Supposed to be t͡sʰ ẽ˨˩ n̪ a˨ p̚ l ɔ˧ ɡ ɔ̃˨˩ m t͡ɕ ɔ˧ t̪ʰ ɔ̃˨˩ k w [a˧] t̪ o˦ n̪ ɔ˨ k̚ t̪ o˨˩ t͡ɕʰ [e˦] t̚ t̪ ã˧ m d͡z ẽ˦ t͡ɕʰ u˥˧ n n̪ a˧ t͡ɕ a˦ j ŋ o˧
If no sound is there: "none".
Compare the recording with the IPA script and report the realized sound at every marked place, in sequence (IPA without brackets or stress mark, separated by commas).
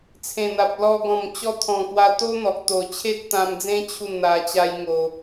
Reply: a˧, e˦